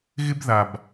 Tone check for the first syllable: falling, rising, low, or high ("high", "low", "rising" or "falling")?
high